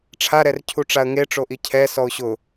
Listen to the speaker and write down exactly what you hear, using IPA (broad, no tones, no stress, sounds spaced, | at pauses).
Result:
ʈ͡ʂʰ a ɾ ɛ r cʰ u ʈ͡ʂ a ə̯ ŋ e ʈ͡ʂ o ʔ i cʰ ɛ s ɔ ʊ̯ ɕ ʊ